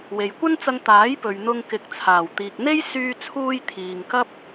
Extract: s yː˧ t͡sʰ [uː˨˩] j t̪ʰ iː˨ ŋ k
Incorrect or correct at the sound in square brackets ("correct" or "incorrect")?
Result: incorrect